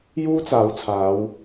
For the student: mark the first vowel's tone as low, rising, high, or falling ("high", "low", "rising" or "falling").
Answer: high